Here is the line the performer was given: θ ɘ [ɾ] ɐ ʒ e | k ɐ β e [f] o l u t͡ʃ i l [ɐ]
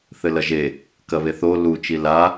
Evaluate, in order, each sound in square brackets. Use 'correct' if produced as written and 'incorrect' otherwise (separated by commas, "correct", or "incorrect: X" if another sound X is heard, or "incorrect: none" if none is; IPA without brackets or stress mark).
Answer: incorrect: l, incorrect: θ, incorrect: a